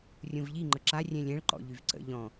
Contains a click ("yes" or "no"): yes